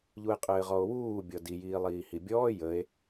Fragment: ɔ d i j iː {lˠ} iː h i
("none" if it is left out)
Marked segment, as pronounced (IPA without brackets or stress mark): lˠ